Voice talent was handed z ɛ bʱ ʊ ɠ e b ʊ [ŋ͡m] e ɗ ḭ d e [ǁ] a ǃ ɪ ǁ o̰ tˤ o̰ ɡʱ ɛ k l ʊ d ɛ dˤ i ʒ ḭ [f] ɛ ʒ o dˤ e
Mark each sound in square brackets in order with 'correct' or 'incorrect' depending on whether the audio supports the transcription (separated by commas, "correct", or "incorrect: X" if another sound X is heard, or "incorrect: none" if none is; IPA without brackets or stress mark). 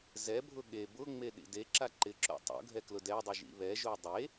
correct, correct, incorrect: β